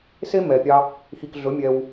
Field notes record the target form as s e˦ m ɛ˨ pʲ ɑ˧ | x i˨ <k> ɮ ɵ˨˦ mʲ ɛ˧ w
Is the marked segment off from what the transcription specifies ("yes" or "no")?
no